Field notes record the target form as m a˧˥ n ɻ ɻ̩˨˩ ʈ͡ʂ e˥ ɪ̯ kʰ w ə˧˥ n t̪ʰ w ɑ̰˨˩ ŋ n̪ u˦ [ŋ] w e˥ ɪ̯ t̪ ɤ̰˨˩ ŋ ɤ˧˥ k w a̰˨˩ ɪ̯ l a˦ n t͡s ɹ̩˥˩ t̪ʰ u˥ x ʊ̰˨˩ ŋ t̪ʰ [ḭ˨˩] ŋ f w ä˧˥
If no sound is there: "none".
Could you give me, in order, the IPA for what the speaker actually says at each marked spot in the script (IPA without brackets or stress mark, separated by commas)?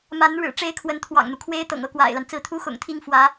kʰ, i˥˩